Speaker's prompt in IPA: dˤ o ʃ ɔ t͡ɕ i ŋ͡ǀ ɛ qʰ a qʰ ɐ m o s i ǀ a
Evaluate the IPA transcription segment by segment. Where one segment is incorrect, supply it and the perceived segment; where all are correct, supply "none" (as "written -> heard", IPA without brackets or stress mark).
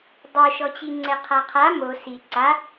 ɐ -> a